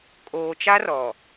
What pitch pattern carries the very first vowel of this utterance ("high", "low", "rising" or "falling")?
low